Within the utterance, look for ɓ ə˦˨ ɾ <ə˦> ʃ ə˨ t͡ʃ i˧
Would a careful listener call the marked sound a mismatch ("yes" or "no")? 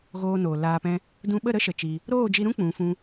no